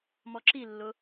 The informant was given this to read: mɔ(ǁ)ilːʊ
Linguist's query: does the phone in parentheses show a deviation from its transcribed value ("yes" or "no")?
no